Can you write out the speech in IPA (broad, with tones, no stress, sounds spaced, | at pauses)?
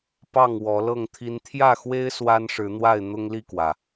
p ɑ˥˨ ŋ w ɔ˨˦ l ɤ˥˨ ŋ t̪ʰ i˦ n t̪ʰ j ä˥˨ x w e˦ ɪ̯ s w a˦ n ʂ ɻ̩˨˦ n̪ w a˥˨ ɪ̯ n̪ ʊ˦ ŋ l i˥˨ k w ä˩